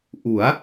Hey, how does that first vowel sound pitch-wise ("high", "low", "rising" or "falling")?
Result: rising